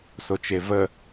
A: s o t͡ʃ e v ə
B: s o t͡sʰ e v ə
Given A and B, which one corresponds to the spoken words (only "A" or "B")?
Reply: A